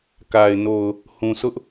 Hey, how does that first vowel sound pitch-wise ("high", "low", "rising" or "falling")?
low